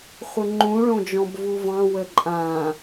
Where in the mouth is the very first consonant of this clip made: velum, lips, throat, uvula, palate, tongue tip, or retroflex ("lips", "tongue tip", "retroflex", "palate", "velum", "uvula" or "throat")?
uvula